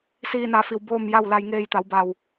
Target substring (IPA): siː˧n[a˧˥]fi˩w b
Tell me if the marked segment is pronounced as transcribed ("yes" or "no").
no